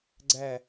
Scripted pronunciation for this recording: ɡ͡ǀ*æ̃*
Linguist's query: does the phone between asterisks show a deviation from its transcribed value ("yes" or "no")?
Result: yes